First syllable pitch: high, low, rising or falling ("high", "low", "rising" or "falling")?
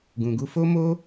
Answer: low